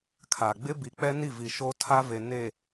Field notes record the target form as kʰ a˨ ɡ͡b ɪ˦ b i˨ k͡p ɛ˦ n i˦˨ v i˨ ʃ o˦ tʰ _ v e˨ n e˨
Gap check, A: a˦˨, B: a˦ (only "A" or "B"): B